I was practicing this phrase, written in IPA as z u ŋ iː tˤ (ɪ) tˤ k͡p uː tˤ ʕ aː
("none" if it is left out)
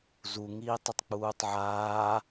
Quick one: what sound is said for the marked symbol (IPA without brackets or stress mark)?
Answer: ɪ